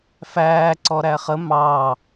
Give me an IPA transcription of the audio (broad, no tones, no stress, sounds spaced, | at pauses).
f æː ǀ ɔ ɾ æ χ ə m ɑ